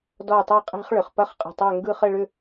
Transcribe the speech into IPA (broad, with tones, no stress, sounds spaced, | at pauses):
d ɔ˥˧ tˤ i˥˧ qʼ e̤˥ χ ɭ ʏ˩˧ χ p ɐ˥ χ qʼ ə̤˧˩ tˤ ø˥˧ ŋ ɡ ɯ˥˧ χ ə˥˧ ɭ ʏ˥˧